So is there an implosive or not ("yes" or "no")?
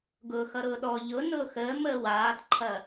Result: yes